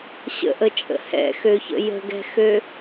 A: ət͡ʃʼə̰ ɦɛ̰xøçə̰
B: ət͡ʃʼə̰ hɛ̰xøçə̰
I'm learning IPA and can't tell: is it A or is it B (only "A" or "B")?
B